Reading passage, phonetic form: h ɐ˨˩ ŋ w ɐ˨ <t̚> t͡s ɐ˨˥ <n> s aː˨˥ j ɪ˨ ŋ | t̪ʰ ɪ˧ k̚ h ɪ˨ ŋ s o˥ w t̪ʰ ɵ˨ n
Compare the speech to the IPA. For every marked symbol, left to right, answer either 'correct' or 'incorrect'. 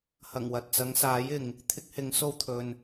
correct, incorrect: ŋ

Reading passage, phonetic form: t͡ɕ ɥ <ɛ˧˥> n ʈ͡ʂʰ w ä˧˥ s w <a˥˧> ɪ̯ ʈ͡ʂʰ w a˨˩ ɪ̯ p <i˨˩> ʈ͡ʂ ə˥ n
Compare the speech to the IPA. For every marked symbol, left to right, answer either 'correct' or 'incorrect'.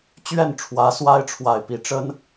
incorrect: ɛ˥˩, incorrect: a˥, incorrect: i˧˥

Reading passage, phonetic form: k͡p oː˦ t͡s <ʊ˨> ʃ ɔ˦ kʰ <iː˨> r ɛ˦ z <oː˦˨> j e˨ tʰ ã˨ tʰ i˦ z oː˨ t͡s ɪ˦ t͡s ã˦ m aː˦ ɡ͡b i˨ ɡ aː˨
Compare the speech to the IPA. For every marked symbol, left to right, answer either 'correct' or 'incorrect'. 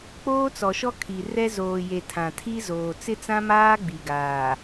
incorrect: ɔ˨, incorrect: i˨, incorrect: oː˨

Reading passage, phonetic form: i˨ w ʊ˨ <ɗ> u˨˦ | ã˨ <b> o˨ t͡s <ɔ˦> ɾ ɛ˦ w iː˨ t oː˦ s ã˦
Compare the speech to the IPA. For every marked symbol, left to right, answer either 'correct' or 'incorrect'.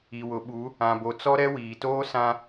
incorrect: ɓ, correct, correct

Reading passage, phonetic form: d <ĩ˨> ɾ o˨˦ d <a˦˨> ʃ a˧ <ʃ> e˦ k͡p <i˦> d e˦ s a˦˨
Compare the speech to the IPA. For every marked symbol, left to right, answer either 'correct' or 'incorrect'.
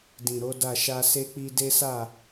correct, correct, incorrect: s, correct

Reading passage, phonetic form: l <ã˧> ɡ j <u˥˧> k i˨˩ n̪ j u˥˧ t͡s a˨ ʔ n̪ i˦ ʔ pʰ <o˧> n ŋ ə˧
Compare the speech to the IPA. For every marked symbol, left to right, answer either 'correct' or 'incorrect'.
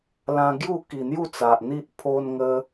correct, correct, correct

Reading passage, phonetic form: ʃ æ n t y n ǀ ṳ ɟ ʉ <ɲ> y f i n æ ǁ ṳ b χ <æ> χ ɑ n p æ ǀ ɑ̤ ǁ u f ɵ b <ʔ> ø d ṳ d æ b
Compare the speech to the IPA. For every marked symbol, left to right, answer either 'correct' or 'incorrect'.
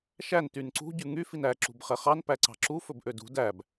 incorrect: ŋ, incorrect: ɛ, correct

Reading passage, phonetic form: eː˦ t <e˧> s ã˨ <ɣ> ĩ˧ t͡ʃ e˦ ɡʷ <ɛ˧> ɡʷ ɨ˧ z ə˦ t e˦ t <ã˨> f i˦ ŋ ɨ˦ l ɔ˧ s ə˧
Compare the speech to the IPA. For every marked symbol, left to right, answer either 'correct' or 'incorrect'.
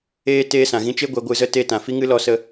incorrect: eː˧, correct, correct, correct

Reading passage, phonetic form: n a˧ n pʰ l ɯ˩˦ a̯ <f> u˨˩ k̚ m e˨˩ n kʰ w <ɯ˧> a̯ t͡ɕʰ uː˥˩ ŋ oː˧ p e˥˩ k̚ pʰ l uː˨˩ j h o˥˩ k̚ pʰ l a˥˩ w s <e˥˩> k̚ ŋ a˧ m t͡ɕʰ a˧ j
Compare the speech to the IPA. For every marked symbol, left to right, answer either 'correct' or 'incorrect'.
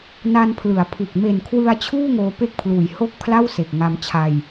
incorrect: pʰ, correct, incorrect: e˨˩

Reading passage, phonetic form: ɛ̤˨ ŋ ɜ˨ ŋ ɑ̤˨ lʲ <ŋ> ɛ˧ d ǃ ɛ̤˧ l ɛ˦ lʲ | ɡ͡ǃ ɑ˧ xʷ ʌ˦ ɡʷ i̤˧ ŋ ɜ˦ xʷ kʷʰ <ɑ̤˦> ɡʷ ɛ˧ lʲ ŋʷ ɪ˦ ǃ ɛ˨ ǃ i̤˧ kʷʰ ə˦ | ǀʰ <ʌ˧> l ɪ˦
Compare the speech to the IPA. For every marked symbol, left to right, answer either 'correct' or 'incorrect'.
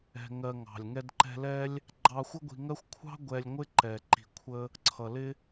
correct, correct, incorrect: ʌ˨

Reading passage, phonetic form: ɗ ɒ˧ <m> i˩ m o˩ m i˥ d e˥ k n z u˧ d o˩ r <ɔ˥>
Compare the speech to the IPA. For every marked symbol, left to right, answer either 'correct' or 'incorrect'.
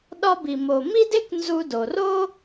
incorrect: b, incorrect: o˥

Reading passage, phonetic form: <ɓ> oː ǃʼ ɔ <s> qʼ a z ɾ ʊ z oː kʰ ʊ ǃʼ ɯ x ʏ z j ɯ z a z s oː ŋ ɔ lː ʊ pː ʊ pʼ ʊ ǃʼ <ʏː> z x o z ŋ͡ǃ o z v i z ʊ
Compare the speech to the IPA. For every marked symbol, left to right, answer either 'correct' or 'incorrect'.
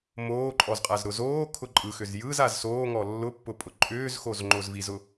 incorrect: m, incorrect: z, correct

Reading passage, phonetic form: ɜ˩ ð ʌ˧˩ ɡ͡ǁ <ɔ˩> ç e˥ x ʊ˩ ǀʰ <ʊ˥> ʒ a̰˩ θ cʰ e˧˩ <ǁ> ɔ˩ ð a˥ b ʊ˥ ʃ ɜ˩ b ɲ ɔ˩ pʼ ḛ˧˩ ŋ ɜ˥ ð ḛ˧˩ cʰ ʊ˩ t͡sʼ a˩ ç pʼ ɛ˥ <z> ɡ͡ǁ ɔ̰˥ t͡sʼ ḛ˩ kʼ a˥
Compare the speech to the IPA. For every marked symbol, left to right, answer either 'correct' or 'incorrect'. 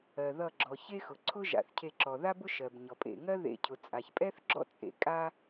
correct, correct, correct, incorrect: θ

